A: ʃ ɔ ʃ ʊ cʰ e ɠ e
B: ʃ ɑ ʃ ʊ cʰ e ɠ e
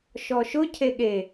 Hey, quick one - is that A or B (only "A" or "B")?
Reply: A